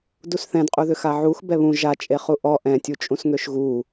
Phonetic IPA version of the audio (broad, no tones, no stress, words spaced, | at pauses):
dusθɛ̃dqʼuðʏ xaʕux bɛβũ ʒa t͡ʃʼeχuʔɔ ʔɛ̃tʲu t͡ʃʼũsŋøʃɣu